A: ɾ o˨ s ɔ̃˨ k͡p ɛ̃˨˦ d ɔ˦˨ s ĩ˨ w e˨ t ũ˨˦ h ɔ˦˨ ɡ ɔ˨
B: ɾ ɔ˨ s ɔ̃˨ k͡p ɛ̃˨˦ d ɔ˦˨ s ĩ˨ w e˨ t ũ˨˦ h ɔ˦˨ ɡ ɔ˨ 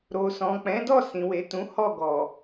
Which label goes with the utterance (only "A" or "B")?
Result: A